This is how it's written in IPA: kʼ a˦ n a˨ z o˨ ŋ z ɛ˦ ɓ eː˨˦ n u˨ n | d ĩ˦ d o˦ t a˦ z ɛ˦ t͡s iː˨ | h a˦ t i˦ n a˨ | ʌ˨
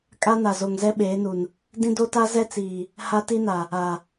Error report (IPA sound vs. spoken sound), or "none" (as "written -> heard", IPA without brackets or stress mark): ʌ˨ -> a˨